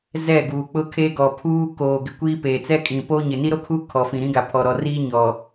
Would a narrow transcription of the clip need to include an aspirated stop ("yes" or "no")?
yes